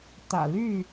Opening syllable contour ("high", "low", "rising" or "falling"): low